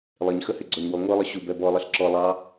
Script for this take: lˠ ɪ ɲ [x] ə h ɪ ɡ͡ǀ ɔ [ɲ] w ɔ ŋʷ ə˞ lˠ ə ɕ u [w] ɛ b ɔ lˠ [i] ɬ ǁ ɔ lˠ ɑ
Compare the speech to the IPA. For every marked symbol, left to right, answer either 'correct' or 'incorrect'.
correct, correct, incorrect, correct

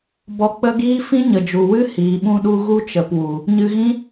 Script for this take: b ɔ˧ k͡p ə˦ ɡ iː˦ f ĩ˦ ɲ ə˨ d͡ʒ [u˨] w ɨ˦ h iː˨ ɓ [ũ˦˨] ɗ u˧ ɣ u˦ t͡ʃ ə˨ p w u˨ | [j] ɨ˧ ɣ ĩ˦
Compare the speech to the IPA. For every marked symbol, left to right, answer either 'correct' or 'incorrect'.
correct, incorrect, incorrect

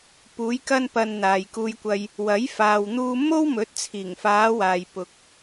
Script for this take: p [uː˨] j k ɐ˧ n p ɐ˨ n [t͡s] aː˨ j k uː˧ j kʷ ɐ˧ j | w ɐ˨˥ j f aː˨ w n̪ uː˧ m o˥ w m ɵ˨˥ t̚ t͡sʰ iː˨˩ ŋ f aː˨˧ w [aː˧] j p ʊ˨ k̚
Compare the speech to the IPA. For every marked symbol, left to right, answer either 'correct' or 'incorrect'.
incorrect, incorrect, incorrect

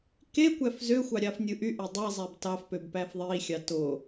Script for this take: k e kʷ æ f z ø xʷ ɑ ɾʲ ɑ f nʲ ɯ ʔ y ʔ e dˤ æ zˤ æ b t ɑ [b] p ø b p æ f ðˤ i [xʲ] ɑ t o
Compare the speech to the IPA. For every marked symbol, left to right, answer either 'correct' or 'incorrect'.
incorrect, correct

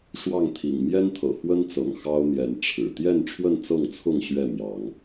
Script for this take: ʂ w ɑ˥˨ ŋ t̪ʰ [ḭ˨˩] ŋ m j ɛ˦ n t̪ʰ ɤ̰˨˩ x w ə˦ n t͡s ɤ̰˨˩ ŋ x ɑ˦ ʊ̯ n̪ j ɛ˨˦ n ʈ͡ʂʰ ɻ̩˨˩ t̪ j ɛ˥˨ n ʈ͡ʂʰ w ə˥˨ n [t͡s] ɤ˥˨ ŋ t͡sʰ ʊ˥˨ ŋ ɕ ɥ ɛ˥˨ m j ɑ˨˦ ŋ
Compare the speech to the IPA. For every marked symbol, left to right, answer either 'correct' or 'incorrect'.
correct, correct

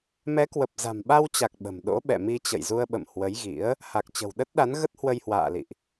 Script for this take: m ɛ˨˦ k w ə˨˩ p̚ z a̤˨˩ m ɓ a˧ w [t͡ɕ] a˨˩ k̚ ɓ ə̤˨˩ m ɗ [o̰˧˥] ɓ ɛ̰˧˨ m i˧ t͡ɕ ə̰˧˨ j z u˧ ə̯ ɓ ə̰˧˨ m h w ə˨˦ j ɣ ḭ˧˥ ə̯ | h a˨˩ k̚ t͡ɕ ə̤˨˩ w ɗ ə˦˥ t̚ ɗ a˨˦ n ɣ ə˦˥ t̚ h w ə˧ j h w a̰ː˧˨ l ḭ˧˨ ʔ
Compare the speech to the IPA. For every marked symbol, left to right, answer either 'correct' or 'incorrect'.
correct, correct

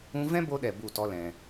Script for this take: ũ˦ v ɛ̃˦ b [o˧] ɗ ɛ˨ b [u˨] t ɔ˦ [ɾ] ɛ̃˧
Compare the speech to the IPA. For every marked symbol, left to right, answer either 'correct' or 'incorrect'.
correct, incorrect, incorrect

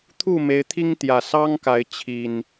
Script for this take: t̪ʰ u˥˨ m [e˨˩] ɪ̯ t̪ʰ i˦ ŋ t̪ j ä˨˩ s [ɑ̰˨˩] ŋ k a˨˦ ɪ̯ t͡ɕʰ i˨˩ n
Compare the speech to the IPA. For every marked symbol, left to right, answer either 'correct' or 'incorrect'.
incorrect, incorrect

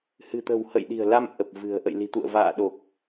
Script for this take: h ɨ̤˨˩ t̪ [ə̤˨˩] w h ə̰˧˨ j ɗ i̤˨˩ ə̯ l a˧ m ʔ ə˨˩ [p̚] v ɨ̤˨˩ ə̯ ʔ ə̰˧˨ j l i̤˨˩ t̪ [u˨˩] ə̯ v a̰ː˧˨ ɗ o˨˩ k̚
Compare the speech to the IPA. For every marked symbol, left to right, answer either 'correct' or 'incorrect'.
correct, correct, incorrect

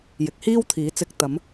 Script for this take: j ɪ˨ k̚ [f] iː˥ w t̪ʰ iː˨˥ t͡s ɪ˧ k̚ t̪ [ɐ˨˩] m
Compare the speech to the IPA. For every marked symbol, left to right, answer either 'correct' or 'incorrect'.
incorrect, incorrect

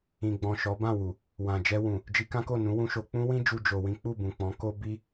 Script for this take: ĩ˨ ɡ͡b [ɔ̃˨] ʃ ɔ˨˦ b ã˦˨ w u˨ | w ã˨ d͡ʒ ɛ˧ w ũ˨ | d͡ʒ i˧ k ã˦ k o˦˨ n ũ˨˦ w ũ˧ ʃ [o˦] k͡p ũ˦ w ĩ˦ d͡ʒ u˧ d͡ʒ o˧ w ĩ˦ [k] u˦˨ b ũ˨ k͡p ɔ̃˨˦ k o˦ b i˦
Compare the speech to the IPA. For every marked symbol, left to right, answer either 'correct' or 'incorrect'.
correct, incorrect, incorrect

